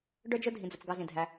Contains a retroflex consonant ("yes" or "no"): yes